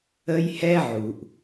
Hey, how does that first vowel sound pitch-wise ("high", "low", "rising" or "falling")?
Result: high